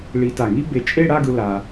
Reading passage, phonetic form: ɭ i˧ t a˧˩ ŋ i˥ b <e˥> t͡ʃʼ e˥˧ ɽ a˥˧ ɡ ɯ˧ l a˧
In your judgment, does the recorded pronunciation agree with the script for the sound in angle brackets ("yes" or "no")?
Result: no